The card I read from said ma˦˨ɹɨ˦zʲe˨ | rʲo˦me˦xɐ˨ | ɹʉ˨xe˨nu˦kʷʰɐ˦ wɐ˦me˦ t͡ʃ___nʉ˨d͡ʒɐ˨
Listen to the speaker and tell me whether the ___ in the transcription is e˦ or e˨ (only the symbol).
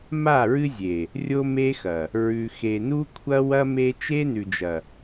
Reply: e˦